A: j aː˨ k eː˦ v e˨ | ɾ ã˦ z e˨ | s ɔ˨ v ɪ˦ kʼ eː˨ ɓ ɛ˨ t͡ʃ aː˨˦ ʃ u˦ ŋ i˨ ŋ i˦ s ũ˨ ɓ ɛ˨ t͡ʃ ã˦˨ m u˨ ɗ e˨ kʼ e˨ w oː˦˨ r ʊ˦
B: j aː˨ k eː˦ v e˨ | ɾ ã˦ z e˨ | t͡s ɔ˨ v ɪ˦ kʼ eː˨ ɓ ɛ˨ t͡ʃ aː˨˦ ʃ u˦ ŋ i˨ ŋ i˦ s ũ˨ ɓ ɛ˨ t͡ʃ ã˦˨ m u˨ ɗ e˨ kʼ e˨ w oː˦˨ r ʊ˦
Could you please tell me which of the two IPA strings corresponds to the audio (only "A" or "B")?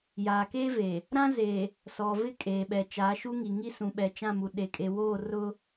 A